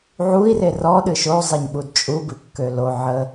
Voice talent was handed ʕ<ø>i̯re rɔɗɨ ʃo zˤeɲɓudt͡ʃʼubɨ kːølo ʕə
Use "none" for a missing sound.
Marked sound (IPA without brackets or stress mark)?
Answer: u